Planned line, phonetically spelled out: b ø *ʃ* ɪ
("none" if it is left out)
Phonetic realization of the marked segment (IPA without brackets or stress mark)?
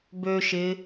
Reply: ʃ